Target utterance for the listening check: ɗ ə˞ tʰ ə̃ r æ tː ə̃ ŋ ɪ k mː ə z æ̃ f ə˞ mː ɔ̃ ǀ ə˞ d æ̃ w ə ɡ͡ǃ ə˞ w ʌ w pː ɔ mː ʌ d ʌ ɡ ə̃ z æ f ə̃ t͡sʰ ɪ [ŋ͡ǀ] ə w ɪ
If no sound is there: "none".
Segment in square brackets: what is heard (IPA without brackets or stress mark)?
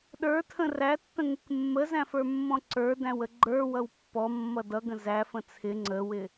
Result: ŋ͡ǀ